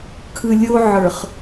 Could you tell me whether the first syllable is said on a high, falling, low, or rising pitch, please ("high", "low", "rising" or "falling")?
low